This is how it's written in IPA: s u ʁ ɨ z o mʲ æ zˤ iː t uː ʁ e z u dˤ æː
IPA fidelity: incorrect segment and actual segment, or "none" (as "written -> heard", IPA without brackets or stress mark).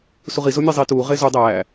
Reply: ɨ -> i